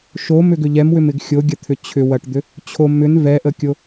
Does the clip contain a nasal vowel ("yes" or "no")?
no